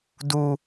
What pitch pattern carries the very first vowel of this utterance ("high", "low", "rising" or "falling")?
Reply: high